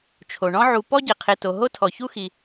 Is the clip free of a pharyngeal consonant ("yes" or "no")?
no